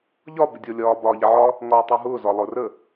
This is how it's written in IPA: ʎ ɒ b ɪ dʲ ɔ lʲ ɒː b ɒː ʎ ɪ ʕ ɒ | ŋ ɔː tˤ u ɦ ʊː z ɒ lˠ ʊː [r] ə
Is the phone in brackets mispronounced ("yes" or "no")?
no